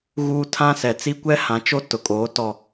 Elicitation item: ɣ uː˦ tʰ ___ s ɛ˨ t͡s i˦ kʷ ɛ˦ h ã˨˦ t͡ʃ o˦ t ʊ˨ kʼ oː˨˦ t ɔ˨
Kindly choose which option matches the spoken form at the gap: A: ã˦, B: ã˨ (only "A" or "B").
A